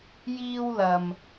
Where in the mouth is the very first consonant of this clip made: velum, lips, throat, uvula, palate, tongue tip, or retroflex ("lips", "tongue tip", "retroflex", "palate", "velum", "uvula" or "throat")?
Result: palate